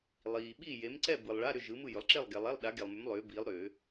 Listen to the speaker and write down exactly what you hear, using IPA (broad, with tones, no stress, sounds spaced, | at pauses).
lˠ iː˨ ɓ i˥˨ j e˨˥ m ǀ ɛ˥˨ b ɯ˨ lˠ ɭ a˧˥˧ ɾ ʏ˥˨ ʒ ɯ˨˥ m ɯ˥˨ j ʏ˨˥ lˠ ǁ e˥˨ lˠ ɡ ɛ˨ lˠ ɛ˧˥˧ lˠ ɗ a˨˥ ɡ e˨ lˠ m ʏ˨˥ m lˠ ʏː˨˥ b iː˨˥ lˠ ɾ ʏː˨˩˦